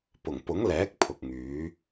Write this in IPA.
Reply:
p ʊ˨˩ ŋ p ʊ˨˥ ŋ l ɛː˨˥ k̚ pʰ ʊ˨ k̚ ŋ yː˨˥

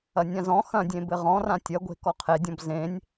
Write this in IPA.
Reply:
ɐ nʲ ã z ɔ̃ x ɐ̃ dʲ ẽ b ɘ ʁ ɔ̃ r ã tʲ ɐ ɡʷ e̤ k ɔ qʰ e dʲ ɔ̃ b z ẽ nʲ

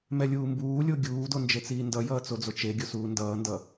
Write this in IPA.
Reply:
m ɛ lʲ uː m b uː lʲ o ɡʲ uː d o n d͡ʒ e t͡s iː n d ʌ j ʌː t͡s o d͡z o t͡ʃ e ɡʲ o s uː n d ʌː n d ʌ

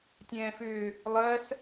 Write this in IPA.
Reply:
tʲ ɛ̃ː f ʏː | lˠ ɜ s

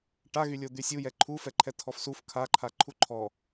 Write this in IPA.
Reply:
ʈ a ɣ y lʲ o d̪ y sʲ u j ɛ ǃʰ u f ɛ ǃʰ ɛ tʰ ɔ f s u f kʰ a ǃʰ a ǃʰ u ǃʰ ɔ

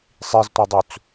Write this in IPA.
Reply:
sˤ i z tʷ e dˤ u t͡s

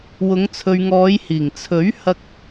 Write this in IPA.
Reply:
w ʊ˨˧ ŋ t͡sʰ ɵ˨ ɥ ŋ ɔː˨˧ j h iː˨˩ ŋ t͡sʰ ɵ˨˥ ɥ h ɐ˥ k̚

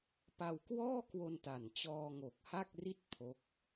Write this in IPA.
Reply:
p a˧ w k w ɔː˥˩ k w o˧ n t a˨˩ n t͡ɕ ɔː˧ ŋ o˨˩ k̚ h a˥˩ k̚ r i˥˩ t̚ pʰ o˦˥ k̚

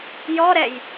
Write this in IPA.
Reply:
j ɔ ɾ ɛ j

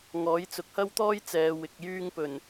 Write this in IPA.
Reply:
ŋ ɔː˨˥ j t͡s ʊ˨ k̚ h ɐ˥ w t̪ ɔː˥ j t͡s ɛː˨˧ w ɪ˨ k̚ j yː˧ ŋ p ɵ˨˩ n

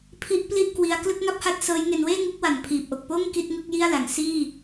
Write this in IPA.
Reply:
pʰ i˦˥ ʔ p l i˥˩ ʔ k w i˧ a̯ k l ɯ˥˩ k̚ ŋ a˥˩ p̚ h a˥˩ t̚ s ɤː˦˥ j ŋ e˧ n w eː˥˩ ŋ u˦˥ k̚ w a˨˩ n pʰ iː˨˩ p̚ ʔ o˨˩ k̚ p oː˥˩ ŋ k i˥˩ t̚ ŋ ɯ˥˩ k̚ j i˥˩ a̯ l a˩˦ ŋ s iː˥˩

